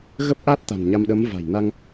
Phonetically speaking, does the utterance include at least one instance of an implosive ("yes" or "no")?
yes